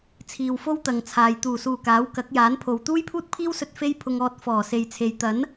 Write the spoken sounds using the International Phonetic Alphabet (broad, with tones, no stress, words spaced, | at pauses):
t͡sʰiː˨wfo˥wt̪ɐ˨ŋt͡sʰaː˨j t̪uː˨˩suː˨˩ kaː˨˥wkɐ˨˥k̚ jaː˨˥npʰo˨w t̪uː˥jpʰuː˥t̚pʰiː˥wsɵ˧t̚ fe˥jpʰʊ˧ŋɔː˧t̚ fɔː˨˩se˨jt͡sʰe˨j t̪ɐ˨˥n